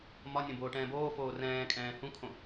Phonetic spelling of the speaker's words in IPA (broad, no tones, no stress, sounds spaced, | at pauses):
m ɒ nʲ õ b oː ʈ ɛ̃ː b oː f oː r ɛ̃ː kʼ ɛ̃ː h ũ kʰ õ